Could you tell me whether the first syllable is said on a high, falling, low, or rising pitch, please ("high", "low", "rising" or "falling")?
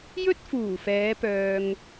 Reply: high